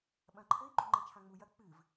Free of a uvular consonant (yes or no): yes